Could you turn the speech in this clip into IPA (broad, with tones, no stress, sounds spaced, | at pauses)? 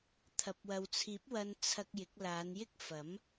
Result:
t̪ʰ ɐ˨ p̚ w ɐ˨ w t͡sʰ iː˨˥ p̚ w ɐ˧ n t͡sʰ ɐ˧ k̚ j ɪ˨˥ k̚ l aː˨˧ n j ɪ˥ k̚ f ɐ˨˥ m